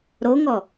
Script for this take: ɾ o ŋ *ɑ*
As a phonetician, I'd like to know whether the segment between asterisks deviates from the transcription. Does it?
yes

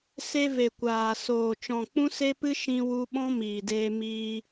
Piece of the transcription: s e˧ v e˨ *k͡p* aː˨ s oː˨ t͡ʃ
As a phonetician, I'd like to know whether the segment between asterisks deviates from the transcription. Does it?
yes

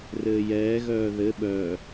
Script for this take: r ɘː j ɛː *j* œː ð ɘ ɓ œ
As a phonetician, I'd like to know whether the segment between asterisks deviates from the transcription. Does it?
yes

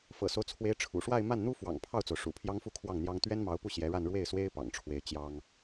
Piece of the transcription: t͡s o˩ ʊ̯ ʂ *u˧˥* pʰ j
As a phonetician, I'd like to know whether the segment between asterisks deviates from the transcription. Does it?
yes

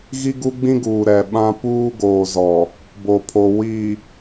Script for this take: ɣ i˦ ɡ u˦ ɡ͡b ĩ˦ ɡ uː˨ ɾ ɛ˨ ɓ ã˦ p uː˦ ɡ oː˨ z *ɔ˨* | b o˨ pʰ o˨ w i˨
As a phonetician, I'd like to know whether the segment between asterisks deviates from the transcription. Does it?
no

